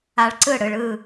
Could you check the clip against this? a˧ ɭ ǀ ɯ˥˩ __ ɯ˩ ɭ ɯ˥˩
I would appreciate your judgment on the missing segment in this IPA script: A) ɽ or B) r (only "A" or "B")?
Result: A